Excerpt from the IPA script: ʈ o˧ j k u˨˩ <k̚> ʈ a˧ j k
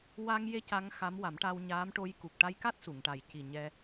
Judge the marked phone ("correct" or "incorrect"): correct